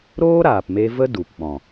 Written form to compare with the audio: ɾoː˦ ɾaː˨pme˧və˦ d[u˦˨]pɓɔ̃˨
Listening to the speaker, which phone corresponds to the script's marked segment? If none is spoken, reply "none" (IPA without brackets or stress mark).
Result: u˨